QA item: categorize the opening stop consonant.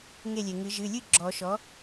click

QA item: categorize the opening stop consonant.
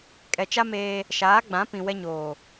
ejective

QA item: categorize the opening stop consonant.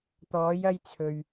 plain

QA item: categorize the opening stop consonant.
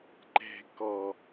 click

